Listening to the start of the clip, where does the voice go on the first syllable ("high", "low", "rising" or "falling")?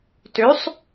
rising